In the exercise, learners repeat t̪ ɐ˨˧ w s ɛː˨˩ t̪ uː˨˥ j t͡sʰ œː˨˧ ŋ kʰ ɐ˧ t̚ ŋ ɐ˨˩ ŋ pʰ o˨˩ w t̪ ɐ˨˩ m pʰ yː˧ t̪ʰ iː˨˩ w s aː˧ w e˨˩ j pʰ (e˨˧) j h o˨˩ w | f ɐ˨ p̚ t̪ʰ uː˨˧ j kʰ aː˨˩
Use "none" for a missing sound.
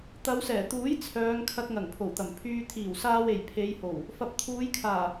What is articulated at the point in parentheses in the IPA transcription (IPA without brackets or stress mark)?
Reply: e˨˧